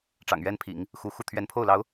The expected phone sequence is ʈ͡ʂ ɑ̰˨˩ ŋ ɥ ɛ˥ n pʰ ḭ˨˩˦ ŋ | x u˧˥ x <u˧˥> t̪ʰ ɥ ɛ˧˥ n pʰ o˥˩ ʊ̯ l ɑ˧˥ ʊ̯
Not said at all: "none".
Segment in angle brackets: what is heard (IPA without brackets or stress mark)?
u˥˩